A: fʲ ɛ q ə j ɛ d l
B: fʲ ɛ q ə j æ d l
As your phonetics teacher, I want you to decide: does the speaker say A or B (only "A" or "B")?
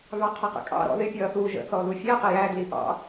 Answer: B